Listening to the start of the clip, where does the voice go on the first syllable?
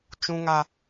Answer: high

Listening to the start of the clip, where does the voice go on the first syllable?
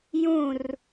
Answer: falling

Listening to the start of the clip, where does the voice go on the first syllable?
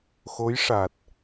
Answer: rising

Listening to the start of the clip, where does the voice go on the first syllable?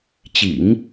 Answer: low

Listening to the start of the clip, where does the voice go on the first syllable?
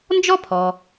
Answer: high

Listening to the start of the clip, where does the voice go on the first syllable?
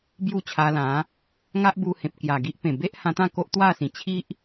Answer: falling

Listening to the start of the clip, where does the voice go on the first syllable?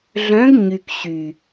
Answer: rising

